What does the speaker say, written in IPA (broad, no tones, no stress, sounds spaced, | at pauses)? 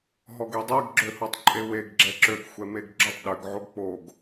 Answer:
ɦ ɔ ɡ e dˤ ɛ ɡ ɡ͡ǁ ø h o tˤ ǃʼ e w e ɡ ɡ͡ǁ ɛ ǁ ø ɡ xʷ ɛ m e ɡ ɡ͡ǁ ʏ tˤ ɗ ʏ ɡ ʕ o ɡ k͡p o ɡ